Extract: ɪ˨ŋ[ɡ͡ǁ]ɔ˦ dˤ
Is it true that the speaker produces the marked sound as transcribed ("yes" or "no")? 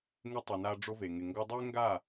no